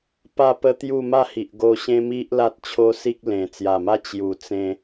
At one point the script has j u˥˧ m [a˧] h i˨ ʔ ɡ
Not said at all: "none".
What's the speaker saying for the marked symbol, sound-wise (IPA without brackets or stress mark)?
a˥˧